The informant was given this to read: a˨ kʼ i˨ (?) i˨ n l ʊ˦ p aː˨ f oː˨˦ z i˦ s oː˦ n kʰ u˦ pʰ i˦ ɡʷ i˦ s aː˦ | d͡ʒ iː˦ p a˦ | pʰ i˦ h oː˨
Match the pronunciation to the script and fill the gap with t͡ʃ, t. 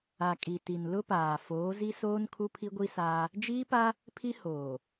t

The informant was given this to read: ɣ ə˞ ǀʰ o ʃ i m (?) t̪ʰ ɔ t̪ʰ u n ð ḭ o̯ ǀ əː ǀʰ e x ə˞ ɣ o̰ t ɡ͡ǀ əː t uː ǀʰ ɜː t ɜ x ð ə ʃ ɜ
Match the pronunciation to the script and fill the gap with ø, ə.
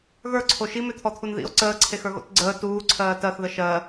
ø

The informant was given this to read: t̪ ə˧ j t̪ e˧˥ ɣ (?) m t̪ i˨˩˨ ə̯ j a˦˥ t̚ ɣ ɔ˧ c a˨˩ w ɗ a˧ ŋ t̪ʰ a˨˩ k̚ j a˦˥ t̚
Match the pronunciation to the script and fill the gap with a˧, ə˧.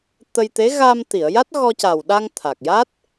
a˧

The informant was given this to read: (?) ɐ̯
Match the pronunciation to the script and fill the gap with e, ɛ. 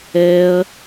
ɛ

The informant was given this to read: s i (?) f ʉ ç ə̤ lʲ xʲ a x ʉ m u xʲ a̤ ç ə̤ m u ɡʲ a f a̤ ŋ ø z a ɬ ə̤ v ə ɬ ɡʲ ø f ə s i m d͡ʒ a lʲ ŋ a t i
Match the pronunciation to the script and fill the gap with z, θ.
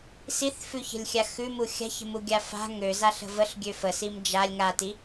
θ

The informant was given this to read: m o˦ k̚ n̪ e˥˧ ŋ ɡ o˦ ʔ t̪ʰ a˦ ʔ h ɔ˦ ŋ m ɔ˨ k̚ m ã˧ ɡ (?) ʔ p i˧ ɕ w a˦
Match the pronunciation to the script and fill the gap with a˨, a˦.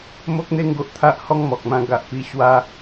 a˨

